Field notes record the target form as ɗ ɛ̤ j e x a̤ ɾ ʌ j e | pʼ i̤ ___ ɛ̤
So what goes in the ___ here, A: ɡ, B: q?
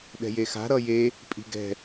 A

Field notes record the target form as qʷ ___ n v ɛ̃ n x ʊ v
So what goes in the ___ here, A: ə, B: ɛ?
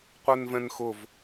B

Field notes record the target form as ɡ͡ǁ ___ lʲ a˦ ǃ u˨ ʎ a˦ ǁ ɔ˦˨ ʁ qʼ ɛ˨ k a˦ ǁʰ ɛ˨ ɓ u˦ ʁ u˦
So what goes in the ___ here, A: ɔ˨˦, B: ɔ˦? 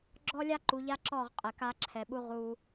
B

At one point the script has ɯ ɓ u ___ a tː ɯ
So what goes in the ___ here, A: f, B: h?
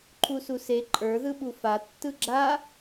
A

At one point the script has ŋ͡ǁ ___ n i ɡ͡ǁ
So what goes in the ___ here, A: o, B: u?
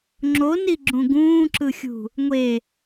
A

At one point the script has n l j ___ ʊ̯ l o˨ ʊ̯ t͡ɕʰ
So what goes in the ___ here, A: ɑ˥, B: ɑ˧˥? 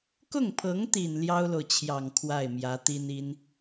A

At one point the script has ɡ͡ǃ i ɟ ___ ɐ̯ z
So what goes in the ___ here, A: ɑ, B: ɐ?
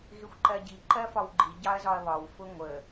A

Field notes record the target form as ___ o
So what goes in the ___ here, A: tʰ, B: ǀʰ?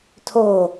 A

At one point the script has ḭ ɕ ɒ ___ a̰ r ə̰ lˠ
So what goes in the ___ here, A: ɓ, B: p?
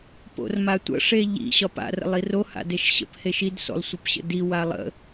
B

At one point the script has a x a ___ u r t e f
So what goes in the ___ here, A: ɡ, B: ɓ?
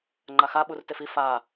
B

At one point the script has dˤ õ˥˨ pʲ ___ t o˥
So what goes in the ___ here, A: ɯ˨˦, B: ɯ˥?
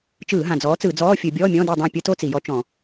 B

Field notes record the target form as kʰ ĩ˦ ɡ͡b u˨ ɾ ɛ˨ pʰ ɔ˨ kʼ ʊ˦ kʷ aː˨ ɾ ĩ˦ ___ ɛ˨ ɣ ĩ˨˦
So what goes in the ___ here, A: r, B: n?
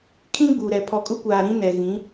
B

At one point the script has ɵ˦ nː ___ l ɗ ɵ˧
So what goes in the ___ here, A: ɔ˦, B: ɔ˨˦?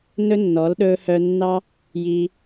B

